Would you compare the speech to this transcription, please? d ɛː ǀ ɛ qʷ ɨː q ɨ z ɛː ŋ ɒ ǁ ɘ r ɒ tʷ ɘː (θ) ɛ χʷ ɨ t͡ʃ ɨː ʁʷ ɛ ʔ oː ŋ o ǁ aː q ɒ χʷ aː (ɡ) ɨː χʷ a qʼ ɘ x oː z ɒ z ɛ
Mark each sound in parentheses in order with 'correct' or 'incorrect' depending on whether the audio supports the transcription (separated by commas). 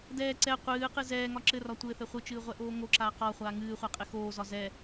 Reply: correct, incorrect